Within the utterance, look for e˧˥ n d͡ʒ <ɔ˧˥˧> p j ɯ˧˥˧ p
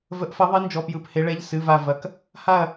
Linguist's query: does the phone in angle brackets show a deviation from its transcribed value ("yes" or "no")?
no